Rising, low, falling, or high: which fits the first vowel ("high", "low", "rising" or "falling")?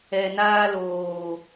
low